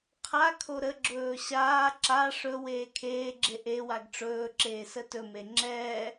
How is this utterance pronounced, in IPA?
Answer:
qʰa kʰoɾəɡ͡ǁɵː ɕaː ǁa ʂɵ weːkʰeːɡ͡ǁe ʔewaɡ ʈ͡ʂɵː ǁeːsətɵme ŋ͡ǁɛː

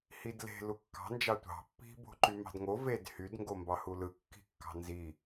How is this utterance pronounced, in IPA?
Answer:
hidle̤ lukːɑ̤ nd͡ʒɑtʷɑ̤ pːi̤ bo̤ǃymɑ̤dŋo ved hyd ŋɡombɑhulɯ kːi̤kːɑ̤nzi

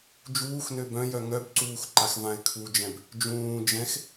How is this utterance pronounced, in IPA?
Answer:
d͡ʒuːxnø bœ̃jœ ŋœbǀuːx ǃaxvãɪ̯kʰud͡ʒɛ̃b | d͡ʒũː d͡ʒɛ̃x

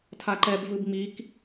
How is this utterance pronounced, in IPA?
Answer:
tʰaǃɛb vɯbŋ͡mik

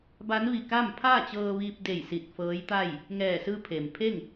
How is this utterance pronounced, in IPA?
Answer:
ba˧˥nʋi˧˩ka˥˨m pʰaː˥˨t͡ɕɤː˧ ʋiː˧p̚de˧˩j si˧˩t̚fɤː˧˥jt̪a˥˨j | ŋɛː˧˩sɯː˧ pʰe˩mpʰe˥˨ŋ

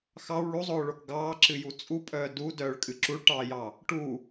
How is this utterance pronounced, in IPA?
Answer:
xɑw ɭuzˤoːɭok ɡɑːǁɨju t͡sʼupʼœː dudœːɭkʼɨ ǁuɭʈɑːjɑ | ʈu

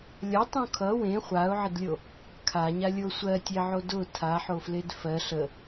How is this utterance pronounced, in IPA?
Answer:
lʲʌtˤũ kʰʌ wẽ χʷaʊ̯ʕɪdlʲo | kʰaɲalʲo sʷɜ tʲeʕo dʊ tʰaħofled fɜ ɬə

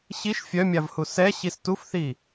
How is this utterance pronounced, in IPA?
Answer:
ɕiʃ fʲœmʲavhu sɛɕis tufθi

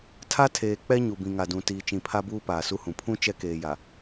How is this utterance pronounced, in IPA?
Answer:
tʰa˦ tʰeː˨k͡pɛ˦ ɲu˨bĩ˨ŋa˨dũ˨ tiː˨t͡ʃĩ˨pʰa˦buː˦ paː˨su˦hũ˨ pʰũ˦ t͡ʃɛ˦ keː˨ja˨

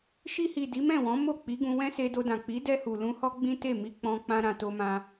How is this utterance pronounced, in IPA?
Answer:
ʃi˧hi˨ di˨˦mɛ̃˦˨wɔ̃˨˦ mo˦˨k͡pi˨˦ɡũ˧wɛ̃˦ se˧do˧dã˨ k͡pi˨˦dɛ˧ hu˨lũ˧ hɔ˦ɡ͡bĩ˦te˦˨ mi˧k͡pɔ̃˧ k͡pã˦ɾã˧to˦mã˦

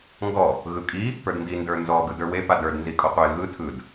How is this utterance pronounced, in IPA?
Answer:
ŋɡɔ | ɣɯkʼi | pə˞dndi ndə˞nzɔ ɡɯdə˞we padə˞d nzikʼɔqʷe ɣɯ tʰɯd

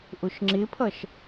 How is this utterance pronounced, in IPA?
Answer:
ʔʊʃŋ͡ǁɪpʰʌʃ

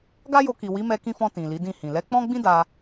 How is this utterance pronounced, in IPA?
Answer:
ɡa˦jo˧ki˨ wi˨˦mɛ˧kĩ˧fɔ̃˧ tĩ˨li˨˦dĩ˦˨hĩ˨ lɛ˨˦k͡pɔ̃˦ɡ͡bĩ˦ da˧

